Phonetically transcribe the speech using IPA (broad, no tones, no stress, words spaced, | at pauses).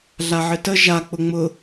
ɮaʕɘtə ʒa k͡pʊŋ͡mʊ